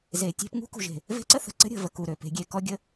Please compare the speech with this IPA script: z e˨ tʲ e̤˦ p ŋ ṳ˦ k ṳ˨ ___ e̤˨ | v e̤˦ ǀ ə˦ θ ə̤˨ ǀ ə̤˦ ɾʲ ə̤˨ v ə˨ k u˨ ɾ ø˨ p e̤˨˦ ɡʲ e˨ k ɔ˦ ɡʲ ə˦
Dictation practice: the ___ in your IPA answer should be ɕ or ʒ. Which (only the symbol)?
ʒ